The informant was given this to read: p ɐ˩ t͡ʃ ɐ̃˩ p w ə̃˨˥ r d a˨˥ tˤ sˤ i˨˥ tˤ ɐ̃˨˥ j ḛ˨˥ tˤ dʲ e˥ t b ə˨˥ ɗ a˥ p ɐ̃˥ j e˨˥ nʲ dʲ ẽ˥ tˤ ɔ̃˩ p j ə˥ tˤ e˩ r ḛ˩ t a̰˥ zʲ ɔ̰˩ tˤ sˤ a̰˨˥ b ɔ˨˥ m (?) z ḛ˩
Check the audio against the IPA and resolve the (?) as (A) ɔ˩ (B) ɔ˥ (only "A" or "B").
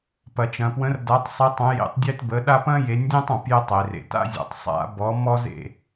B